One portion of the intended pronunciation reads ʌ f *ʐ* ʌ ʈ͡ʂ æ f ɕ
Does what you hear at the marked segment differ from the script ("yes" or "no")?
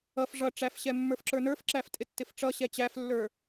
no